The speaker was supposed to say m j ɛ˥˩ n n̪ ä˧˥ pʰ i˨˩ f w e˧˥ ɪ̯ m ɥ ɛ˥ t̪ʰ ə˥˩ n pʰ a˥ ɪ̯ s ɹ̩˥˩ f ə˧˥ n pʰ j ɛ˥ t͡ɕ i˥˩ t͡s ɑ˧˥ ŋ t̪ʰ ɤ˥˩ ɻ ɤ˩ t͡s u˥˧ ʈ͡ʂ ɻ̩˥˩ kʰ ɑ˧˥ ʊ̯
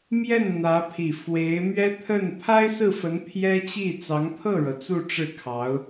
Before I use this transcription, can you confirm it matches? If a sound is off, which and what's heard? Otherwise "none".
none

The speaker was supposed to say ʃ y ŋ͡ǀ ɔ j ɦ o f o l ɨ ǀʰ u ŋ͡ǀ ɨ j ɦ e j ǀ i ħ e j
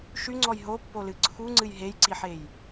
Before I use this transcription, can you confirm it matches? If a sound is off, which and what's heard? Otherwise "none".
f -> pː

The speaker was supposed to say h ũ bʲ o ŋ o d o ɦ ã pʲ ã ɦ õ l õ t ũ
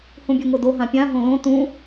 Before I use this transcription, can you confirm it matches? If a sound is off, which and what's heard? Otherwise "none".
none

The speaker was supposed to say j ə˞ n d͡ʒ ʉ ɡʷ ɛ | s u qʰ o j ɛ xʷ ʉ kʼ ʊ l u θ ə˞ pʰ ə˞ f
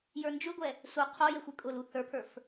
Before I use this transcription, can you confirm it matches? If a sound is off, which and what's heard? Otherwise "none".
none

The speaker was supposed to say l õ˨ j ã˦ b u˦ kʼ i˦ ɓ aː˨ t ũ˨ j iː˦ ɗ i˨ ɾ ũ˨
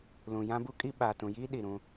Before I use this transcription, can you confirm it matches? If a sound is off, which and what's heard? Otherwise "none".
õ˨ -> ũ˨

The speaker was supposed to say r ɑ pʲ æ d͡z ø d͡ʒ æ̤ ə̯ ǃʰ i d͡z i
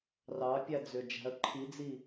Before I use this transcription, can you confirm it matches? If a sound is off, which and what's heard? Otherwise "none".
none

